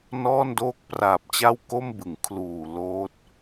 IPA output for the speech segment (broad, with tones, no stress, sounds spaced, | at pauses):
n ɔː˥˩ n d oː˥˩ k̚ p r aː˨˩ p̚ t͡ɕ a˥˩ w k o˥˩ m b ɯ˩˦ ŋ kʰ l uː˨˩ l oː˦˥ t̚